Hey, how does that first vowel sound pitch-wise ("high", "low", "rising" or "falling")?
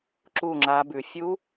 falling